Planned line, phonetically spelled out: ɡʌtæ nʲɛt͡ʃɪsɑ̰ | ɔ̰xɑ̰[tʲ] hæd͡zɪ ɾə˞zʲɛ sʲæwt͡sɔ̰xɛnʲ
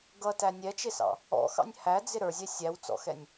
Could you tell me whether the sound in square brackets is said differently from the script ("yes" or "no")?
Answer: yes